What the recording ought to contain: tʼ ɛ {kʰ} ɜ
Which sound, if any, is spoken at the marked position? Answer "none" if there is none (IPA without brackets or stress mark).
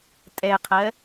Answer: qʰ